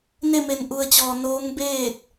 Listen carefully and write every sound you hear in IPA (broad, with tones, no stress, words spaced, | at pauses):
ne˥˨me˧nʔu˧ə̯t͡ɕɔː˧ noː˧˥ŋbeː˥˨t̚